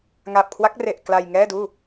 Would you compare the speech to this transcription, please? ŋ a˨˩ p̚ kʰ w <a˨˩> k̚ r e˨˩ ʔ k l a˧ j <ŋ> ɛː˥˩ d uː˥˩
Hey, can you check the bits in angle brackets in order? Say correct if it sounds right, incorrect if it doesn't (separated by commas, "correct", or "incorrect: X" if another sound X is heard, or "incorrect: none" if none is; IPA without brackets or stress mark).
incorrect: a˦˥, correct